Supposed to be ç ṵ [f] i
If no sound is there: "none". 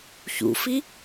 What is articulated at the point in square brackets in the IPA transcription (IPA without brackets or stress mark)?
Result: f